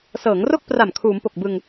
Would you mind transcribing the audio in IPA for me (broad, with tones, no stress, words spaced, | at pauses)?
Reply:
sɤː˩˦ŋro˥˩k̚pra˨˩m kʰuː˩˦mpo˨˩k̚bɯ˧ŋ